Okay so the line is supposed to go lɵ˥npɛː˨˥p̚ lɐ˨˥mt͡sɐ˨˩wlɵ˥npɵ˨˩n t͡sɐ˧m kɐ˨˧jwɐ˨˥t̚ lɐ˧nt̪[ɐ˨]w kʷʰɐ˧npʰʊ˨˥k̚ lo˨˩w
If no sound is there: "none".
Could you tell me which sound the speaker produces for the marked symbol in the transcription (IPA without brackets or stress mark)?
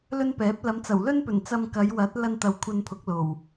ɐ˨